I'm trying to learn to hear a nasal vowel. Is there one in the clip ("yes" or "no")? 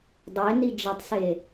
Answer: no